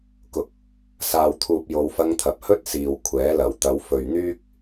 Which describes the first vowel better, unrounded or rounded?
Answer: rounded